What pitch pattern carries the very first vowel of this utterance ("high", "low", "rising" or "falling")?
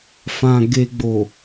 low